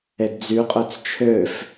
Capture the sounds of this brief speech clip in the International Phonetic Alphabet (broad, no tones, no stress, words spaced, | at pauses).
edd͡zyqʼøt͡s t͡ʃʰøf